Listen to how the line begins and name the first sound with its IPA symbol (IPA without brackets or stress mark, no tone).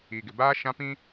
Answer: iː